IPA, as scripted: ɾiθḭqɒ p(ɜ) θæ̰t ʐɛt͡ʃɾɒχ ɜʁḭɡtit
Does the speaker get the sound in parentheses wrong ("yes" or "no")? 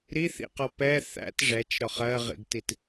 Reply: yes